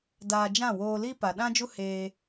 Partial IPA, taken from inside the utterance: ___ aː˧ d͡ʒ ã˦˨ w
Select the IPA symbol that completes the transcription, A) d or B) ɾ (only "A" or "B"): A